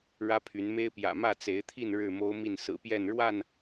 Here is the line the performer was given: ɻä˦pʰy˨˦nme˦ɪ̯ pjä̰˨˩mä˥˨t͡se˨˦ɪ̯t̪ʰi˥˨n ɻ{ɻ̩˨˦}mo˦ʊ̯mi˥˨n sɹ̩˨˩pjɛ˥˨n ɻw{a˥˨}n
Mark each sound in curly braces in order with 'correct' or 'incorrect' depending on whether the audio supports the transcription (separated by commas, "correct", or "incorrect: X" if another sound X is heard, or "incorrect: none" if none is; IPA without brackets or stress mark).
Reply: incorrect: ɻ̩˥˨, correct